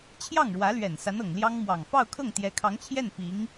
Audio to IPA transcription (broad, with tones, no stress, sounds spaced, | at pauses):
t͡ɕʰ j ɑ˥˩ ŋ ɻ w ä˧˥ l ɥ ɛ˨˩ n s a˧˥ n ɤ˨˩ ŋ l j ɑ˥ ŋ m w ɑ˨˩ ŋ f ɑ˥˧ ʊ̯ kʰ ɤ˥˩ ŋ t̪ j ɛ˧˥ kʰ ɑ˧˥ ŋ t͡ɕʰ j ɛ˥˩ n p i˧˥ ŋ